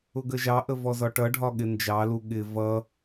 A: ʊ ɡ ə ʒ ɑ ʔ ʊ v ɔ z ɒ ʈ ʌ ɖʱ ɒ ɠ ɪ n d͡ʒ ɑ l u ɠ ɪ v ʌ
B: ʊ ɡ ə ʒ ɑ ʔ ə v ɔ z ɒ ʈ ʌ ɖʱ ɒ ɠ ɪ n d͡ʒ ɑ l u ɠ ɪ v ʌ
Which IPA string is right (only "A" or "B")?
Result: B